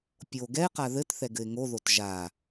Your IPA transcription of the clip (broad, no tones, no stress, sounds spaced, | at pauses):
pʲ o ɡ ɛ ɪ̯ q a ð ɘ t θ ɛ ɡ ɘ ɪ̯ ŋ o ð o t ʒ a